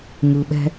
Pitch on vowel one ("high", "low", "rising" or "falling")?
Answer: low